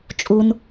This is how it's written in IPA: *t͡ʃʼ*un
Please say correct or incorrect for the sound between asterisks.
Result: correct